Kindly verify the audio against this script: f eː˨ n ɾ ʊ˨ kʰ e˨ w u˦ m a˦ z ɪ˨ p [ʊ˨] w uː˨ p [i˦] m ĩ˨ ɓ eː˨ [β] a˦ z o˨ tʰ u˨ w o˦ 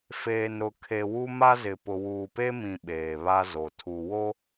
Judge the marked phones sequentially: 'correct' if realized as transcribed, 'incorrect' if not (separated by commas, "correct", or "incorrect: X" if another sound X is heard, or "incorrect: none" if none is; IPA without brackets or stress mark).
correct, incorrect: e˦, correct